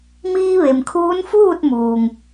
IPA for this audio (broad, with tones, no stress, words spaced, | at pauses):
miː˧ʋe˩mkʰuː˧˥n fuː˥˨t̚muː˩ŋ